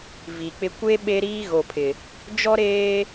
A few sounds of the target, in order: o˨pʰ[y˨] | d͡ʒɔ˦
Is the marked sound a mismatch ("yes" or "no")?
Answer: yes